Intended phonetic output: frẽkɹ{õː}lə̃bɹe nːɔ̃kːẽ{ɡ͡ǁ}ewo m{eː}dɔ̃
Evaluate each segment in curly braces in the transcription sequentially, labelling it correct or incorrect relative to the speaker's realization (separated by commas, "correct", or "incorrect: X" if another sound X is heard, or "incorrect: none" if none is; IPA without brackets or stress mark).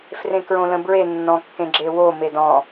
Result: incorrect: õ, correct, incorrect: e